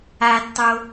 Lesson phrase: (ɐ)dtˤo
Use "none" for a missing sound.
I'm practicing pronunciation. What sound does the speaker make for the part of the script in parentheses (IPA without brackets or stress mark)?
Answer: a